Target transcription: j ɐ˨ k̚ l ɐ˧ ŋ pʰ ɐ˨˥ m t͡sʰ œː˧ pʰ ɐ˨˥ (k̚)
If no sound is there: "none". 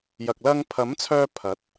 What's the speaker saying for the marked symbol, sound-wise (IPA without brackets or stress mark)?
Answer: t̚